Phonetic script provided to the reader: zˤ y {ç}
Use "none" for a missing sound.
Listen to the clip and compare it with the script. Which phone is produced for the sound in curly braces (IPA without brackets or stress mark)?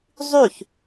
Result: ç